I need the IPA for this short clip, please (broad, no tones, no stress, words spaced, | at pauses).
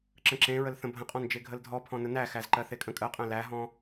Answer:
ǁə̃ǁẽɹəlθə̃ bʱə̃qʼɔ̃nd͡ʒe ɡʱəldʱɔpʰɔ̃ nənæxæzǃɜ θekʼə̃kʼɜqʼæ̃ læɦɔ̃